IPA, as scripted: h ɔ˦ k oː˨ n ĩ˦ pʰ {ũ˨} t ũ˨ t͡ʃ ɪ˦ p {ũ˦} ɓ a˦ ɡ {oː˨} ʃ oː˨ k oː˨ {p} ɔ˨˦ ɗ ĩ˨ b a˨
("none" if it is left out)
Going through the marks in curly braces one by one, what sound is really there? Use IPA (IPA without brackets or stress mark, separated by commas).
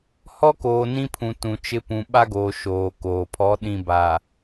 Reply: ũ˨, ũ˨, oː˨, pʰ